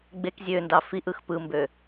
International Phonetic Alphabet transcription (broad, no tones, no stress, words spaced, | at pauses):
ɡ͡bek zʲøndɑ fiʔɯx pɯmbø